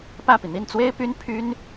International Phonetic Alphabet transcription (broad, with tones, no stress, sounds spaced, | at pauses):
p ä˥˩ p i˩ n̪ i˥˩ n t͡s w e˥ ɪ̯ p y˥ n pʰ y˥ n